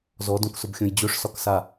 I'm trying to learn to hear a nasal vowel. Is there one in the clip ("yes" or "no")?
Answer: yes